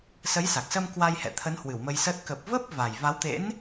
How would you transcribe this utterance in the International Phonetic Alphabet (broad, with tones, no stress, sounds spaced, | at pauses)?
s ə˨˦ j s a˨˩ k̚ s ə˧ m k w a˧ j h ɛ̰˧˨ t̪ʰ ə˨˦ n h w ɨ˧˩ w m ə˧ j s əː˦˥ t̚ k ə˨˩ p̚ v ə˦˥ p̚ v a˨˩ j v a˨˦ w t̪ ḛ˧˥ n